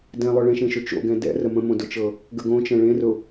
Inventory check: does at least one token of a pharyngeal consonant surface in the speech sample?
no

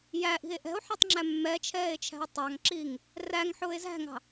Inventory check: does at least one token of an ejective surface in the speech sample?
no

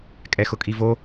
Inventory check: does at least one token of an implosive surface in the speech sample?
no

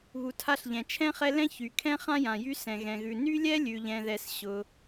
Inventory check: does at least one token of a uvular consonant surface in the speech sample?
yes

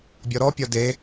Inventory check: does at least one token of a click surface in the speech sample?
no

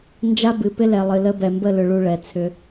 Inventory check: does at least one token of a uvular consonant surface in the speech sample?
no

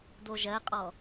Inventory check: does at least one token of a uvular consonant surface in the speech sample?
yes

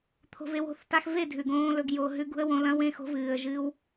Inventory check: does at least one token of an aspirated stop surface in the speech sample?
yes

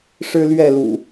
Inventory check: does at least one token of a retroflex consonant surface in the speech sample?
yes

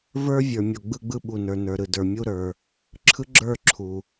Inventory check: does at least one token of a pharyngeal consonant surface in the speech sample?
no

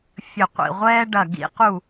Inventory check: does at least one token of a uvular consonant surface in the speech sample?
yes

